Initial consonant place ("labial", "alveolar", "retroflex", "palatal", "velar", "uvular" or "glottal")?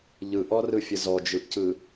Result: palatal